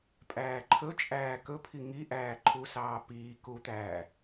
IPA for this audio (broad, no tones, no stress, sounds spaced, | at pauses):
pʼ æː ǃʰ ɵ t͡ʃʼ æː k ɵ pʰ i ŋ i ʔ æː ǃʰ u s ɑː p iː k u t̪ æː